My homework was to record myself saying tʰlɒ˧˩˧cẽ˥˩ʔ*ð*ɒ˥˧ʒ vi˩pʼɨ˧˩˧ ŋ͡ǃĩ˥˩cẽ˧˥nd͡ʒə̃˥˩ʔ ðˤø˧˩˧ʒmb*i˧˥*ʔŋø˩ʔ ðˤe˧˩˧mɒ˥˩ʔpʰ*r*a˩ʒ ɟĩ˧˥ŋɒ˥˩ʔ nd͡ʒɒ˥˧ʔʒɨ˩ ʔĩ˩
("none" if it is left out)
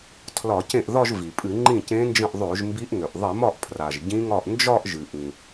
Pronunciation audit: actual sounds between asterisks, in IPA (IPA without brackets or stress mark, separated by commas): ð, i˧˥, r